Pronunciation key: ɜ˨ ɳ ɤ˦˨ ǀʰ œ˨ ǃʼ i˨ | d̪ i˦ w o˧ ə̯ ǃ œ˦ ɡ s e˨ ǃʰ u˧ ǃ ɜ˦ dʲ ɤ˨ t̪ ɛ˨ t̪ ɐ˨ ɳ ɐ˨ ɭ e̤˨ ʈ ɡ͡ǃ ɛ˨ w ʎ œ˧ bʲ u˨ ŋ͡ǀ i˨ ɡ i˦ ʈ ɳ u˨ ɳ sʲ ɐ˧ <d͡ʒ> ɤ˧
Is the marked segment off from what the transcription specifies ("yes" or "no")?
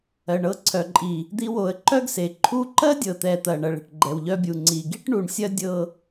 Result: yes